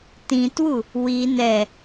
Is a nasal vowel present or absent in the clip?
present